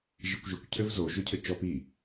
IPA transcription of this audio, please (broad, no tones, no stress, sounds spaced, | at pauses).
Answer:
ʒ i kʷ ʒ ɘ kʷ cʰ ɘ v z o ʒ ʊ cʰ ɘ t͡ʃ ɔ p i